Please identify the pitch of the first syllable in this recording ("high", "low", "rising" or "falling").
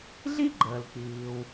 high